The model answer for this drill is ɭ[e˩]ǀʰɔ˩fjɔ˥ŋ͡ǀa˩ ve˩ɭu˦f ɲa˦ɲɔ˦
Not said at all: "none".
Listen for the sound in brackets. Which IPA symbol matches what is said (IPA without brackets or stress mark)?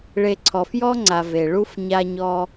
e˨